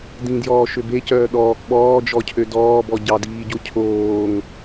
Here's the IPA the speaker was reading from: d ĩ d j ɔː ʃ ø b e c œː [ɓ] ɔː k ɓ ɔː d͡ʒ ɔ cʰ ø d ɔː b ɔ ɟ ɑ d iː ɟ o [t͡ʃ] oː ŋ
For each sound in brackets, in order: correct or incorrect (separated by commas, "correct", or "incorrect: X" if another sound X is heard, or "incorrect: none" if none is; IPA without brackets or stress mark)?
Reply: incorrect: ɗ, incorrect: cʰ